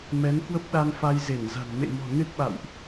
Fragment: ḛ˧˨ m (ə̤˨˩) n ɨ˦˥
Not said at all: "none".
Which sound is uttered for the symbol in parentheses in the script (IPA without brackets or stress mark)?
ɔ̤˨˩